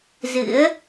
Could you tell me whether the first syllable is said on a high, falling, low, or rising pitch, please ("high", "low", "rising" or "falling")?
rising